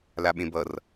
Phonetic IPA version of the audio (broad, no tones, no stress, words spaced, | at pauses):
laɓẽbʌr